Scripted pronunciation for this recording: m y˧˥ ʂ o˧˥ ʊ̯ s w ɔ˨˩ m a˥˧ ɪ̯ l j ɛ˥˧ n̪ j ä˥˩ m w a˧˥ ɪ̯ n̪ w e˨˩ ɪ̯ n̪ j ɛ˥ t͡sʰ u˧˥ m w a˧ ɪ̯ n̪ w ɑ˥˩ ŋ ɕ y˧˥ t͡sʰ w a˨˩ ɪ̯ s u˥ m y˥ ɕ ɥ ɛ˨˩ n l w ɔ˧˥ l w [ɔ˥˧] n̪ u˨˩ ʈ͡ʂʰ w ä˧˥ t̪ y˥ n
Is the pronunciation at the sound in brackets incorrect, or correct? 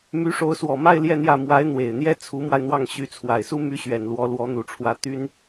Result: incorrect